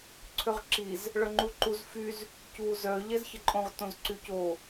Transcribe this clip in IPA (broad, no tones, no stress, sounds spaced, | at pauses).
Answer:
ǀʰ ø ʁ ǁ i z | ɭ œ ŋ͡ǃ u ǃ u z f y z | c uː z œ ʎ ɛ z ç ə ǃʼ õ ʁ t õ z ǀ y c o